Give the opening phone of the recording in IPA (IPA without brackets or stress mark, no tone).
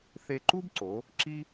θ